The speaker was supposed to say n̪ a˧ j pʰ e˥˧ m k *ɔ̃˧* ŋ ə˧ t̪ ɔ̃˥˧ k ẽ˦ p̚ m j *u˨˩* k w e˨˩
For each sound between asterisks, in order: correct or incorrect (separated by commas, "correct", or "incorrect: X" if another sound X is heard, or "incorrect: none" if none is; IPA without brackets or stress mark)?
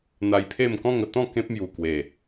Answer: incorrect: ɔ̃˥˧, correct